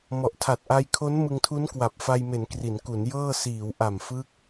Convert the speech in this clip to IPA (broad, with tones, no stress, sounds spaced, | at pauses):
m ɔ˨˩ ʔ tʰ a˨˩ t̚ ʔ a˧ j kʰ o˦˥ n m ɯ˧ ŋ tʰ u˦˥ n k w a˨˩ p̚ f a˧ j m e˩˦ n k r i˩˦ n k u˩˦ n j ɤː˥˩ s iː˩˦ w ʔ a˨˩ m f ɯ˦˥ k̚